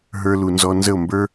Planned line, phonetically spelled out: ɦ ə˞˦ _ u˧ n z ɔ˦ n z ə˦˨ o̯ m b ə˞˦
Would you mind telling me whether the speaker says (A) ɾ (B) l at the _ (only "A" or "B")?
B